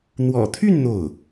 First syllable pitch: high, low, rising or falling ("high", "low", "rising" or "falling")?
low